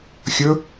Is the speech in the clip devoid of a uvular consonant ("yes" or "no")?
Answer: yes